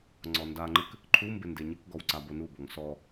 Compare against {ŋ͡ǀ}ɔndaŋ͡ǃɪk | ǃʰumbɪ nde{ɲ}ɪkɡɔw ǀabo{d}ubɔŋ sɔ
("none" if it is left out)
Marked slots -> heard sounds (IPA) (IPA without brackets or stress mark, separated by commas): ŋ͡ǀ, ɲ, n